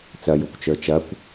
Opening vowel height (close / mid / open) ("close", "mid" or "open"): open